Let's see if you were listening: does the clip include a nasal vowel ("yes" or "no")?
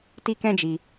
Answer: yes